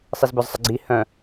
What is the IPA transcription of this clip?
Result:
sˤ i z b œ z sˤ ə ɡ͡ǀ i h œ̃

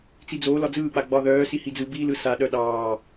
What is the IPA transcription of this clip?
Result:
t͡s i d͡z oː l ɒ d͡z ɯː k͡p a ɡ͡b ɒ ð œː s i h i d͡z ɯ b i l ɯ s a ɗ œ ɗ ɑː

